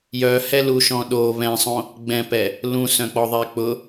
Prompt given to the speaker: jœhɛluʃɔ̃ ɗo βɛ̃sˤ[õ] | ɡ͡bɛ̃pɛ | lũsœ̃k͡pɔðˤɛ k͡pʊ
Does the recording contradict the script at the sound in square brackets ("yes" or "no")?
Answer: no